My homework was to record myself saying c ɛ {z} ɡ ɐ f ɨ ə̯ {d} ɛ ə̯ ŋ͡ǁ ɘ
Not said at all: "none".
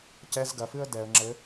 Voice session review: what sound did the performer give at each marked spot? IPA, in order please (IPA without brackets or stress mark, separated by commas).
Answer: z, d